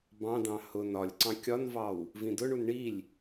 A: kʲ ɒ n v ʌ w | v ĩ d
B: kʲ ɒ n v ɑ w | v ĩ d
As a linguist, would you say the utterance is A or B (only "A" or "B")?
B